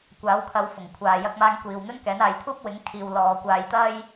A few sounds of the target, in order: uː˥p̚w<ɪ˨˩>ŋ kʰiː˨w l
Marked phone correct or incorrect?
incorrect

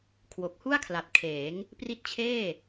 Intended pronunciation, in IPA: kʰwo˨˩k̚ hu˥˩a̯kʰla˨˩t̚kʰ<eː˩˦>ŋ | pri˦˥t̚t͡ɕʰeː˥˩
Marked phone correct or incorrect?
correct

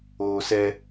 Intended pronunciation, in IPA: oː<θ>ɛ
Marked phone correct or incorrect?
incorrect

